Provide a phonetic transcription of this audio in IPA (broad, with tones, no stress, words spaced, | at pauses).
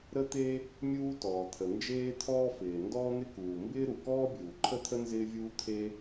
ɾə˥t̪e˥ | mʲuː˥tɔː˩t̪ʰə˩ nd͡ʒeː˥t̪ʰɔː˥fɪː˩ ndɔː˥n̪ɪ˥kuː˩ mbɪː˥ɾu˩ kɔː˥bʲuː˩ ǃʰə˥t̪ʰə˥ nzɪː˥vʲuː˥ t̪ʰe˥